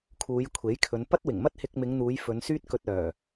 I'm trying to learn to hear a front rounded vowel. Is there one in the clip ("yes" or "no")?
yes